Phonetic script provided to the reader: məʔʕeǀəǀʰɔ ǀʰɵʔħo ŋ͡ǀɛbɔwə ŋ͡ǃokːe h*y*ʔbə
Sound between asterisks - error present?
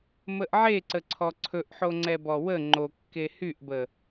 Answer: no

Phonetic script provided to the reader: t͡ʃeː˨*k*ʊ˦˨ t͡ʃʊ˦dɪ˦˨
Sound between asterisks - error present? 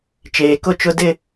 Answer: no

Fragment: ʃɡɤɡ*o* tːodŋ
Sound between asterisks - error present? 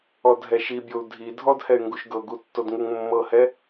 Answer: yes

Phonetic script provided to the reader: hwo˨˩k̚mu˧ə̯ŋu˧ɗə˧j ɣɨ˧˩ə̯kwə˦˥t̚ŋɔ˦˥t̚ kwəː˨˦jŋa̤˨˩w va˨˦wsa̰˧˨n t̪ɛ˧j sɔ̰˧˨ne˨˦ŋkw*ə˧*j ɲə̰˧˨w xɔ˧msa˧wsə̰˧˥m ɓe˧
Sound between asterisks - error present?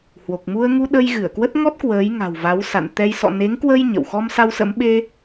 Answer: no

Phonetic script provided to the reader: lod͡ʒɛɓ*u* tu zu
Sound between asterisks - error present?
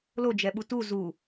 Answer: no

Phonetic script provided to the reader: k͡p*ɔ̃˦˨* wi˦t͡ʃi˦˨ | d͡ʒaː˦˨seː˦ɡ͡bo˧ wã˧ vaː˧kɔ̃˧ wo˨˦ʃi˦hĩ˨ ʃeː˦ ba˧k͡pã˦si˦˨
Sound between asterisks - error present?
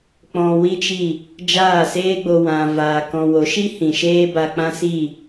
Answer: yes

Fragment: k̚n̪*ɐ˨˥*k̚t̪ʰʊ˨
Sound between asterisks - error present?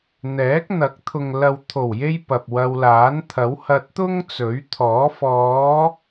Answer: no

